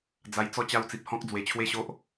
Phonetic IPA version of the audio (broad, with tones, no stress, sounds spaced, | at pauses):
d͡z a˧ j t͡s ɔ˥˧ t͡ɕ a˦ w t͡s i˨ p̚ h ɔ̃˦ k̚ d͡z w e˨˩ t͡ɕʰ w e˥˧ ɕ o˦ ʔ